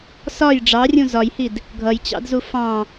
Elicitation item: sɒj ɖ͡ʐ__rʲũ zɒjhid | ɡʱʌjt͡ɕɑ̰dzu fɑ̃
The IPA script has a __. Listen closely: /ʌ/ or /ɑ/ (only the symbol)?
ɑ